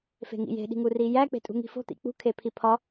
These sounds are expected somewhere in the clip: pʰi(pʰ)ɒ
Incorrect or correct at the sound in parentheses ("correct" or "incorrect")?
correct